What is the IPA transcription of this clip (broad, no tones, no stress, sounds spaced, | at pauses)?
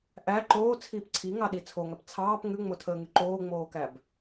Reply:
ʔ æ ǃ oː t͡sʰ iː p ǀʰ i ŋ ɑ ɗ i t͡sʰ o ŋ æ p t͡sʰ ɑː p ŋ ʉ ŋ͡m o tʰ əː ŋ ʉ ǃ oː ŋ͡m oː k æ b